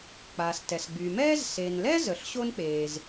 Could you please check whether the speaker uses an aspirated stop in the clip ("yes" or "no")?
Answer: no